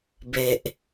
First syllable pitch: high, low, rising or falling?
low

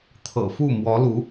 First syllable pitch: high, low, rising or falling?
low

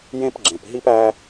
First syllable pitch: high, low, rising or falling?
high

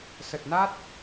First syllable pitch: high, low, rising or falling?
low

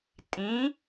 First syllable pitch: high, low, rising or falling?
rising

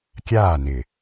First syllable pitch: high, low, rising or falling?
falling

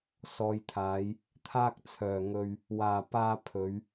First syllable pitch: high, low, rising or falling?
low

